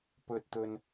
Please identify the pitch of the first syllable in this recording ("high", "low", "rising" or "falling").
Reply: low